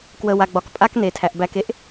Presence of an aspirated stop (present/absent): present